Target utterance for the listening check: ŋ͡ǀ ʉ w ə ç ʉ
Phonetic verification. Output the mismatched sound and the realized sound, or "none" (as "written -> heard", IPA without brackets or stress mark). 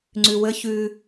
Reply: none